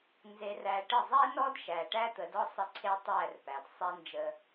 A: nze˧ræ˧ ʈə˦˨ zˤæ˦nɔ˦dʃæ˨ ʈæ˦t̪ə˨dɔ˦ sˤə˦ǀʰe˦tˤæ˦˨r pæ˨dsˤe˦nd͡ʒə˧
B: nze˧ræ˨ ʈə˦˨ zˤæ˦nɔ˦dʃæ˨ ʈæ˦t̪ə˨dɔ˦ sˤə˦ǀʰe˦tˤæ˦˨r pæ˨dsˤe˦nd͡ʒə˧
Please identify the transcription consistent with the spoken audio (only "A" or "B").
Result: A